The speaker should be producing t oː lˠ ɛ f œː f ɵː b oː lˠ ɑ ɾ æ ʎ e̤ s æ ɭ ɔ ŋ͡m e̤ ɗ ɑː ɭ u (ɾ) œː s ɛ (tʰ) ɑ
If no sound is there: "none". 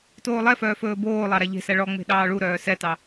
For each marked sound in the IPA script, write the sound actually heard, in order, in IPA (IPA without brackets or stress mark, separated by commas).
ɾ, t